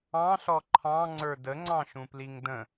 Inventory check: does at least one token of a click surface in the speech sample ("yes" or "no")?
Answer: yes